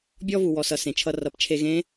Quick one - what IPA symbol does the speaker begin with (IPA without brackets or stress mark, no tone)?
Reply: bʲ